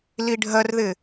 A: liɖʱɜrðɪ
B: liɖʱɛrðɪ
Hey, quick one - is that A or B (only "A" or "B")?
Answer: A